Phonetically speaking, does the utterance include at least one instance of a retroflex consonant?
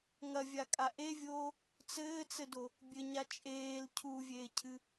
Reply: no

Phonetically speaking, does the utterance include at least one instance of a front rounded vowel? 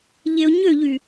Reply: yes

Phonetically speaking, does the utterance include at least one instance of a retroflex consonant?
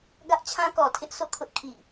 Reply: no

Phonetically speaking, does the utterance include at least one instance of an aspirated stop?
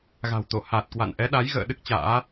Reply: no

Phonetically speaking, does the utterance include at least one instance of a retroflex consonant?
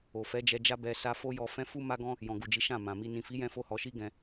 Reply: no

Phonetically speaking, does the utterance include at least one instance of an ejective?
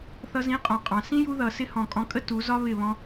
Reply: yes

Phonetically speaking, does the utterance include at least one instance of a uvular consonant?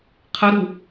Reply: yes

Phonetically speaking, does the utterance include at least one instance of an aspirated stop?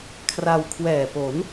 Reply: yes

